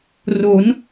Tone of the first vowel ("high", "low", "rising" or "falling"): rising